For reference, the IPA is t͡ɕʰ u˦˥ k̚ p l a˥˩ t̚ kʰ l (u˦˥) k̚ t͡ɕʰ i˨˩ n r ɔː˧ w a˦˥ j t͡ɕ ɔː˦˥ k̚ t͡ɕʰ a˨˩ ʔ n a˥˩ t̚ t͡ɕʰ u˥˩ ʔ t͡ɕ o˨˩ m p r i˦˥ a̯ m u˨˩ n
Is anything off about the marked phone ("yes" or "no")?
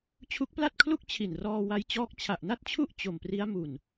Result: yes